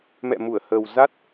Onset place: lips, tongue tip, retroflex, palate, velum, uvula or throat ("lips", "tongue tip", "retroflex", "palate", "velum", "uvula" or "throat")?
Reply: lips